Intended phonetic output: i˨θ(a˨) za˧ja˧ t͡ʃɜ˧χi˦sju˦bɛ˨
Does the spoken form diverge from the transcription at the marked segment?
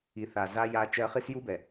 no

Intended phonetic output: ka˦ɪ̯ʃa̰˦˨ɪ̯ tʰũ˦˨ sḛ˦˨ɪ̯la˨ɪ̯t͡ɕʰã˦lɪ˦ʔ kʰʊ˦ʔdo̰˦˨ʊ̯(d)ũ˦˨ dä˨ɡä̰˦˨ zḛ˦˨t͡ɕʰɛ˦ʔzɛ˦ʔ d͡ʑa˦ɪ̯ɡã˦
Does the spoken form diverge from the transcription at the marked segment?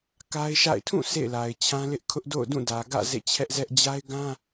no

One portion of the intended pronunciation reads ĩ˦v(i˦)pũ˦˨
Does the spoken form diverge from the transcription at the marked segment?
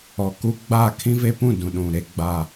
yes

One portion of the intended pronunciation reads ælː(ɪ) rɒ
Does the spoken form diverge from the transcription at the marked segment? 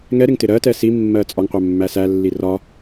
yes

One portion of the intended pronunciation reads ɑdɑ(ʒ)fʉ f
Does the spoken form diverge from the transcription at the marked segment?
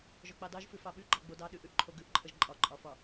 no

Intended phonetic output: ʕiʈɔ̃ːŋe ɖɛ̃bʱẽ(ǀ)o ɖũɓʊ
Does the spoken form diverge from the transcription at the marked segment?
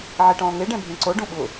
no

